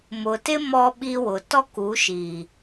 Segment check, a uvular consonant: absent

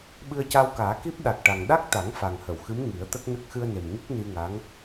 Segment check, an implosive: present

